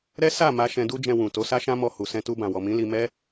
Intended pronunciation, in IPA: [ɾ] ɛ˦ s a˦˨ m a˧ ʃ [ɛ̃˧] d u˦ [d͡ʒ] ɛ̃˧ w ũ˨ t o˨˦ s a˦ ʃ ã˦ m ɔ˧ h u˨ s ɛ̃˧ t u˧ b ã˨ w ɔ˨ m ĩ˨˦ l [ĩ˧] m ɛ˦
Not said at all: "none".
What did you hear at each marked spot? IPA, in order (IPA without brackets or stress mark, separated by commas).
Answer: ɾ, ɛ̃˧, d͡ʒ, i˧